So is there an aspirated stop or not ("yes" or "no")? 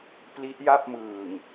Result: no